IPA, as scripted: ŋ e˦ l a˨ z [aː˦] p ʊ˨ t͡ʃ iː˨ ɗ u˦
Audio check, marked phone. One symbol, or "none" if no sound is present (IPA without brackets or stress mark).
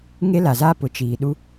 aː˦